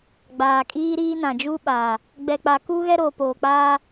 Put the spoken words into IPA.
ɡ͡baː˨kʼiː˦ɾiː˦nã˨ d͡ʒu˦ɓaː˨ | ɡ͡bɛ˨k͡pa˨ ku˦ ɣɛ˦ɾoː˨ poː˨k͡paː˦

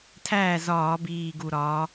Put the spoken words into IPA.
tʰæː˥˩zɒː˧˩˧ biː˨˩ ɡu˨˩ ɾɒː˩˧

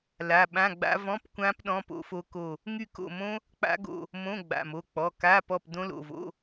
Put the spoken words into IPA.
la˩˧˩ɓã˧˥˧ɡ͡ba̰˦˥ vɔ̃˧˥˧pkʷã˦˥p ɗɔ̃˧˥˧po̰˦˥fo˦˥ ko˦˨ | ŋy˦˨ko̰˦˨mõ˦˥ | k͡pa̰˦˥ɡo̰˦˨ | mõ˧˥˧ ɡ͡ba̰˩˧˩mo˩˧˩k͡pɔ˩˧˩ ka˧˥˧pɔ˦˨p dõ˦˥lo̰˩˧˩vo̰˧˥˧

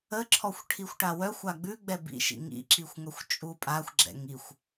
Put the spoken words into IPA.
əǁʰɔxʷ ʈʰixʷʈawœxʷa ɡ͡bʉ ɡ͡bɛbḭʃḭ ŋḭǁixʷ ŋœxʷt͡ʃʼupʼaxʷɡ͡ǁɛ̰ŋ ixʷ

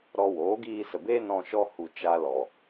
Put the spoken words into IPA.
ɾɔ˧ woː˨˦ɡiː˧sə˨beː˦ nɔ̃˧ ʃɔ˧hu˨ t͡ʃa˧lɔ˨

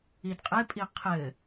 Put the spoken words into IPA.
idqʼepʼi qʰɘ

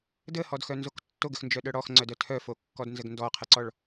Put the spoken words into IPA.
dəhɔdxœnzok tːoɡəxnd͡ʒœɗœ ɽɔxŋ͡ǀœdœ tʰœfokːɔdnzəɡ ndɔqʰəǀɔɭ

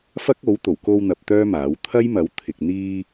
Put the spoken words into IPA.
fɐ˥k̚o˨˥w t̪o˨˩wko˧wn̪ɐ˨p̚ t̪œː˥maː˨˥w t̪ʰɐ˥jmɐ˨˥w t̪ʰɪ˨k̚ n̪iː˧

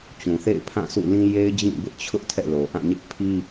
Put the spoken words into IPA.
t͡ɕũ˨θḛ˦˨ɪ̯pʰã˦˨ sṵ˦˨lĩ˦ je˦ɪ̯d͡ʑĩ˦˨bɪ˦ʔt͡ɕʰʊ˦ʔ tʰɛ̰˦˨lo˨ʔã˦˨ɲɪ˦ʔ pʰi˦

